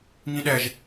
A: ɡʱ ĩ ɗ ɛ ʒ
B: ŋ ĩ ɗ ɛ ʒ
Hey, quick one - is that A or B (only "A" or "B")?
B